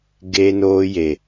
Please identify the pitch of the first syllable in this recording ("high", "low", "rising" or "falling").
high